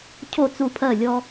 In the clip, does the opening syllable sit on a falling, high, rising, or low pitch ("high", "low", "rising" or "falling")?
falling